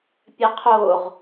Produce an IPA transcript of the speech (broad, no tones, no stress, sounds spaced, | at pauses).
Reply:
pʲ ɛ qʰ o ʁ